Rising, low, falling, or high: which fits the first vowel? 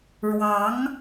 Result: rising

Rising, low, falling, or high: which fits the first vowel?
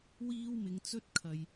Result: high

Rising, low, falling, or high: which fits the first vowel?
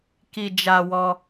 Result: low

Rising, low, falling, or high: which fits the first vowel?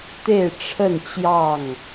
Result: falling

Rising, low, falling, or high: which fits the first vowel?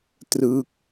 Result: falling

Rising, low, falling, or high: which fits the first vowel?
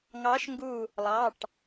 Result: rising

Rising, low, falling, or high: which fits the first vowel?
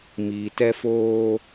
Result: low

